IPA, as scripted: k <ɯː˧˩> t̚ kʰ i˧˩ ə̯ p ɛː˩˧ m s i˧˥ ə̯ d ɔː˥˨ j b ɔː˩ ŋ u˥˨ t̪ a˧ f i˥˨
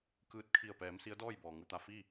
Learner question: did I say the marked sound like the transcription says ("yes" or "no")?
yes